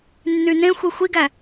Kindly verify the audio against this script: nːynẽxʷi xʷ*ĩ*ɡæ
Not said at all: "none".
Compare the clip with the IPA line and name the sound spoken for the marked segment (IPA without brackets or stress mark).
i